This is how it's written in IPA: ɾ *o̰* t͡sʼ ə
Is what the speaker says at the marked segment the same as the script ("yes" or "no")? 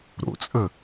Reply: yes